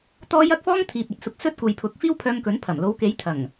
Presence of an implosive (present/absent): absent